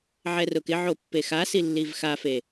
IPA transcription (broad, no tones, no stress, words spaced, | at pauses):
ʕɛrʊkɪʕo pːexasi lːivxafe